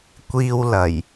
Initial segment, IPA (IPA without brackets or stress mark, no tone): kʷ